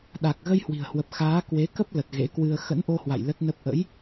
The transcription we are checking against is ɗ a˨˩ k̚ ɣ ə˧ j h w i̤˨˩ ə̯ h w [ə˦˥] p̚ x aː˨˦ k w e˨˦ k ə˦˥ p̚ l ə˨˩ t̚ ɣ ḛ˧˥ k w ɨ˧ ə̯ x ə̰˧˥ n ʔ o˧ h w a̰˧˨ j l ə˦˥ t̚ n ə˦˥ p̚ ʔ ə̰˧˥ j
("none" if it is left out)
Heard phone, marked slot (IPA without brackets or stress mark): ə˨˩